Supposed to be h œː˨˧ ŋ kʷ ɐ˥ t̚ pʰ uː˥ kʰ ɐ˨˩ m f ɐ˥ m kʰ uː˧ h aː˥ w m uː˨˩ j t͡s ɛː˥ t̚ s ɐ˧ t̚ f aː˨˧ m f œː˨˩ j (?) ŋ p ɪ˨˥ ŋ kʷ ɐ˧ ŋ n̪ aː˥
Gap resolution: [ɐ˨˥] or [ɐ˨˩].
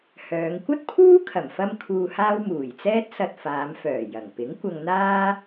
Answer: ɐ˨˩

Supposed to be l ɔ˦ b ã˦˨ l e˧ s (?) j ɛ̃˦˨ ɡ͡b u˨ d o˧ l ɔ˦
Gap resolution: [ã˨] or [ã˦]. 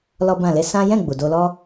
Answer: ã˦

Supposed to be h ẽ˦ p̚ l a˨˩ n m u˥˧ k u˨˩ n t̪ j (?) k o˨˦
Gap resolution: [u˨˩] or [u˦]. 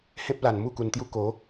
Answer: u˦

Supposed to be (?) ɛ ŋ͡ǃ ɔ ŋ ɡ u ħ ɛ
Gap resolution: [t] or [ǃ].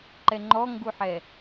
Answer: ǃ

